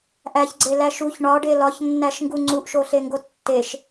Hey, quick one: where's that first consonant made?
throat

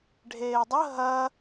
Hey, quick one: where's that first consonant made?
retroflex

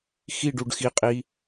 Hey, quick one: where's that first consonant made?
velum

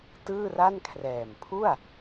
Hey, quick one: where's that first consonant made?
tongue tip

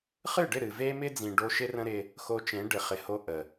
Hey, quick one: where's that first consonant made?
uvula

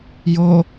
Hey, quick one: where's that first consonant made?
palate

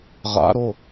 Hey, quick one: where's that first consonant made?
uvula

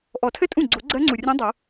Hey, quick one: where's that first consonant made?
throat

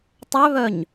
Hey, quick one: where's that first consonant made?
tongue tip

